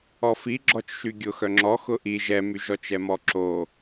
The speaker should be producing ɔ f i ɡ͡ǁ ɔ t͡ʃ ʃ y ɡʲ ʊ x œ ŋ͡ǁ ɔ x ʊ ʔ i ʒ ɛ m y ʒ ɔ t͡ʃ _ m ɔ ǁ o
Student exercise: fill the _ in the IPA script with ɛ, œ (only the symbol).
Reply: ɛ